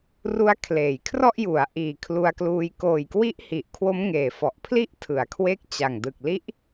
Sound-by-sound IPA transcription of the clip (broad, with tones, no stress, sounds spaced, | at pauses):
r u˦˥ a̯ kʰ l eː˩˦ j kʰ r ɔ˥˩ ʔ j u˩˦ a̯ ʔ iː˨˩ kʰ l u˧ a̯ k l uː˧ j k oː˨˩ j k w i˦˥ ʔ h i˨˩ ʔ kʰ w o˦˥ m ŋ eː˨˩ f ɔ˨˩ ʔ pʰ l i˥˩ ʔ tʰ ɯ˩˦ a̯ kʰ w e˦˥ k̚ t͡ɕ a˨˩ ŋ d ɯ˨˩ k̚ l i˦˥ ʔ